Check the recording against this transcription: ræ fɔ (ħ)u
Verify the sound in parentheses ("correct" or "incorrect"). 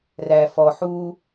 correct